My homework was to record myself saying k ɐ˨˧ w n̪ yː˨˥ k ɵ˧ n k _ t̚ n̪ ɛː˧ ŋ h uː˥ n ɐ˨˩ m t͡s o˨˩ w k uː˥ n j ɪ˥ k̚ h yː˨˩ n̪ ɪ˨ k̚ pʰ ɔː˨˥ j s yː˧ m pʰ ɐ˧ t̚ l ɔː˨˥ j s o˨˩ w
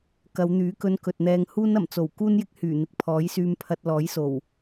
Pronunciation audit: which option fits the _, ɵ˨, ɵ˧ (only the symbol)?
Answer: ɵ˨